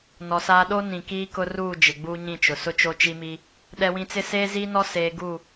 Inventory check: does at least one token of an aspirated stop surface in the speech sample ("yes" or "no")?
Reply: no